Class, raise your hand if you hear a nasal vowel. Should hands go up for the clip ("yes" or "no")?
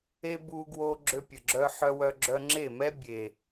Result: no